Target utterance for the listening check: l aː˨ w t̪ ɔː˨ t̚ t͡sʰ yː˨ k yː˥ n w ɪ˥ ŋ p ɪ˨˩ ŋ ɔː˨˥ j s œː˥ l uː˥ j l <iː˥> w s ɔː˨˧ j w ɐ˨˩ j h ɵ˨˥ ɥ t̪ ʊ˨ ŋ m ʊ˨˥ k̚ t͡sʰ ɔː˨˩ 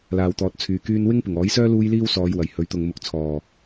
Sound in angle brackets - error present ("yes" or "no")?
no